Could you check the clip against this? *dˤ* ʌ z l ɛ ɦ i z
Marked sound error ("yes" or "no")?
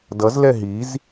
yes